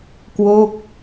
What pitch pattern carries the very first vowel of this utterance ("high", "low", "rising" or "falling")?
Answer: falling